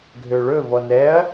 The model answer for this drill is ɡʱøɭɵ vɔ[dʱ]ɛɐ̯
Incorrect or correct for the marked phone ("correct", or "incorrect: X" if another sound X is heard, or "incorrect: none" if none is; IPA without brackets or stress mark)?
incorrect: n